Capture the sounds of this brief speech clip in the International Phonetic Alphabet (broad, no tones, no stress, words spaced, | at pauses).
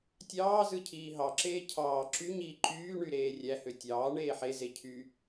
tʲɑːzɯ cʰiːɦɑǁeː cʰɑː ǁyɲiː ǃyːɳy ɾeːrʲæhø tʲɑː ɳeːħeze cʰy